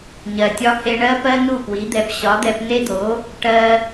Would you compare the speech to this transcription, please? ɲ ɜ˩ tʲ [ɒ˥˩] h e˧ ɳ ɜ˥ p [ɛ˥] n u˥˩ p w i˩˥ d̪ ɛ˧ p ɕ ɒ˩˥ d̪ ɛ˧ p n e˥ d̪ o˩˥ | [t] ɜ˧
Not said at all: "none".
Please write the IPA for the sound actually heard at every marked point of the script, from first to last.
ɒ˧, ɜ˥, ʈ

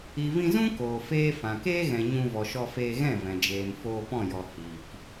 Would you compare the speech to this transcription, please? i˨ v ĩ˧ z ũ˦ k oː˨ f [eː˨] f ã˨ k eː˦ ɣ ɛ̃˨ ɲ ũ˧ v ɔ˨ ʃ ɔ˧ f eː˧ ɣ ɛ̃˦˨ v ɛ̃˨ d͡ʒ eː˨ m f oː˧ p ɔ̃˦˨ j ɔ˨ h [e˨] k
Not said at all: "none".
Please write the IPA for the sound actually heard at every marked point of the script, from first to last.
eː˦, i˨

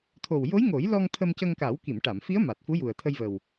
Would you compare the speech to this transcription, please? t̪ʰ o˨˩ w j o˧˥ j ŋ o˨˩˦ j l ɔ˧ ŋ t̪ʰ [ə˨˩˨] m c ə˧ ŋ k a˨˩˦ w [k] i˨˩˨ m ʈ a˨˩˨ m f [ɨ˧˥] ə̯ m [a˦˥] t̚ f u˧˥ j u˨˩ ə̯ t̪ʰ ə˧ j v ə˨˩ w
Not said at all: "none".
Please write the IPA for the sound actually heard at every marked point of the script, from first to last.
ə˧, k, i˧˥, a˨˩

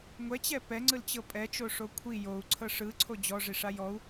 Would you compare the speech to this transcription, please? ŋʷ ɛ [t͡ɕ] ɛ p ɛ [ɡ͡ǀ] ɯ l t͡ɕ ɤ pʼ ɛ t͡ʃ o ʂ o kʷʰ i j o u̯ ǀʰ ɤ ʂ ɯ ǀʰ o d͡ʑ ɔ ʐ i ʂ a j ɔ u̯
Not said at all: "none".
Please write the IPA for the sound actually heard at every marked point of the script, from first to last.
t͡ɕ, ŋ͡ǀ

